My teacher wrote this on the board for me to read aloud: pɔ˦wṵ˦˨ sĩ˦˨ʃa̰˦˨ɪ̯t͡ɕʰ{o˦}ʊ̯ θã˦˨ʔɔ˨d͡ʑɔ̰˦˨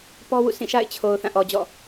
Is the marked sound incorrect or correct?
incorrect